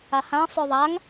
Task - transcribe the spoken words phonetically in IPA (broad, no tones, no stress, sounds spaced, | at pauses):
a h ã sˤ ʉ ðˤ a ŋ